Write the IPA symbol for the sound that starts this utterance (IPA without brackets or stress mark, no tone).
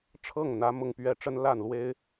ʈ͡ʂʰ